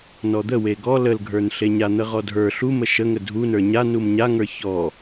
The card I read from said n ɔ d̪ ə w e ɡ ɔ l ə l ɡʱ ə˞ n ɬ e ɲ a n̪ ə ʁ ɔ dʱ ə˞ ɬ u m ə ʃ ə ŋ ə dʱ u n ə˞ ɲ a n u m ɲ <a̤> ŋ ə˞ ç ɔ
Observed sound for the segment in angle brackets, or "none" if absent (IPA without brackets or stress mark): a